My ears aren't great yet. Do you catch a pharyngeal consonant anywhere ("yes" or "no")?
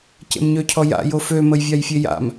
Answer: no